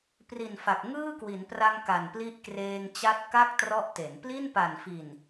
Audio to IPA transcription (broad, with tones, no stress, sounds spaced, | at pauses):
p r i˨˩ n f a˨˩ k̚ ŋ ɯː˥˩ k w i˩˦ n p r a˧ ŋ k a˨˩ n p l i˦˥ ʔ k r eː˧ ŋ t͡ɕ a˦˥ t̚ k a˥˩ k̚ t r ɔ˦˥ ʔ t e˩˦ n p l i˥˩ n p a˨˩ n f i˨˩ n